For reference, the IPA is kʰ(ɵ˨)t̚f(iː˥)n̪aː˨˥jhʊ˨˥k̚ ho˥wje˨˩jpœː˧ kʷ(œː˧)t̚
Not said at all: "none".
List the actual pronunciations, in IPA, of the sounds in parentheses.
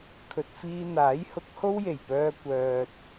ɵ˨, iː˧, œː˧

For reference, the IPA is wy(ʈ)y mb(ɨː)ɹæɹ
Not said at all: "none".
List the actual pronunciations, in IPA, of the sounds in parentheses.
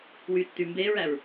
tː, eː

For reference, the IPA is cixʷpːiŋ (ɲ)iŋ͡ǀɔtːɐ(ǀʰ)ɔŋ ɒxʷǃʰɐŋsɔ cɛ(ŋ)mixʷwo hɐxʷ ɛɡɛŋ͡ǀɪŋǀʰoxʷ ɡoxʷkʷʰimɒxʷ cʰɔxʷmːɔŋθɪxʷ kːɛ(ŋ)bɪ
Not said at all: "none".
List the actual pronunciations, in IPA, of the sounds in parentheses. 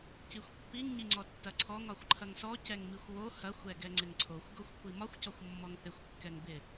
ɲ, ǀʰ, ŋ, ŋ

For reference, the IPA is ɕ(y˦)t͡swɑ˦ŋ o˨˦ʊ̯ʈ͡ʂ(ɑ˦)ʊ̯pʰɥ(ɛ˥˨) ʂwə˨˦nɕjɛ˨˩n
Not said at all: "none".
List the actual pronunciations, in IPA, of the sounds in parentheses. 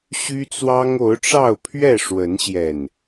y˦, ɑ˥˨, ɛ˥˨

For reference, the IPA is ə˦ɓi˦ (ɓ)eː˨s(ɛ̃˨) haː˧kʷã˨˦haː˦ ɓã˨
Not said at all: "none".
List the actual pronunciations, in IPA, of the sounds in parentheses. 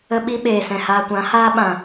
ɓ, ɛ̃˨

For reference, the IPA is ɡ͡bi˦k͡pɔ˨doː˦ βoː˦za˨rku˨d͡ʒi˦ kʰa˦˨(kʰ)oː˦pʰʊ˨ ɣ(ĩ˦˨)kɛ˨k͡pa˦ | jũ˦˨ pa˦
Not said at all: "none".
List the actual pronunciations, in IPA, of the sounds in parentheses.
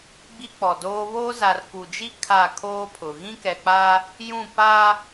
kʰ, ĩ˦

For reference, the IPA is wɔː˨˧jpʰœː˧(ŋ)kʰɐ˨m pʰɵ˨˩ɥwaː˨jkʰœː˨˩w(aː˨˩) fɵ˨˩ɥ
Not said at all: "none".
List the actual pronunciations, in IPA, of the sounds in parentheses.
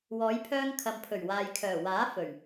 ŋ, aː˨˥

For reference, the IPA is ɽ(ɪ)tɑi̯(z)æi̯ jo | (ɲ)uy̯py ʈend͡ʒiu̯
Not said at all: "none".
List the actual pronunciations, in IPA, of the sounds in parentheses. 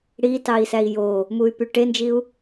i, s, m

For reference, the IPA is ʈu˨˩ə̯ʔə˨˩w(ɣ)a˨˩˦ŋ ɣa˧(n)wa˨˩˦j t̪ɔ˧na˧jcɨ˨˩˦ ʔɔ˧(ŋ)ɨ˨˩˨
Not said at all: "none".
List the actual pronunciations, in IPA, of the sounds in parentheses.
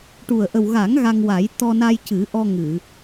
ɣ, ŋ, ŋ

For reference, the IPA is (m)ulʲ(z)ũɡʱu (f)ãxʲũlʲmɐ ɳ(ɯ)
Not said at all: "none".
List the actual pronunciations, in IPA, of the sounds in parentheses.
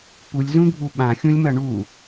p, z, ɓ, u

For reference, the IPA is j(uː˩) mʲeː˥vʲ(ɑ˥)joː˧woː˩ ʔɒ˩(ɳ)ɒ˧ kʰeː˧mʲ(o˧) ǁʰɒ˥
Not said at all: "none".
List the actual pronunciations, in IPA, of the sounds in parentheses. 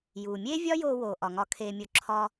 uː˩, ɒ˥, ŋ, o˧

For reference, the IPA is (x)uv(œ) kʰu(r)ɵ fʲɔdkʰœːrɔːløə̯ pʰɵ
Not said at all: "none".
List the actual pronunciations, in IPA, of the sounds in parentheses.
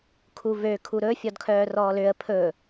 kʰ, ø, ɾ

